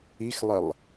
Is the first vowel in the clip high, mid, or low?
high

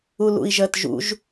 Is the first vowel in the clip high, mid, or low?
high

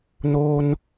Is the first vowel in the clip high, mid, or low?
mid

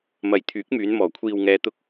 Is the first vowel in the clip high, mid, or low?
low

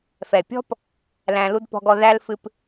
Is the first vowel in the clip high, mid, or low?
mid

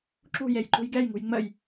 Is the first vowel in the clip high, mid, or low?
high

